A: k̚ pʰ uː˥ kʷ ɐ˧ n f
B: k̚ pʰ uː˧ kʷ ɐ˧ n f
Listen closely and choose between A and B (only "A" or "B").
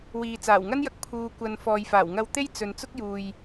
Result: B